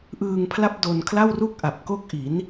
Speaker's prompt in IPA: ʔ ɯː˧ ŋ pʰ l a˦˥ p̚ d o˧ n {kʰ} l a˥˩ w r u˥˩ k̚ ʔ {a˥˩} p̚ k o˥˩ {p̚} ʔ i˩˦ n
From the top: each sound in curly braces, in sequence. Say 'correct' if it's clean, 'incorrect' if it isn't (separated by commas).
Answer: correct, incorrect, incorrect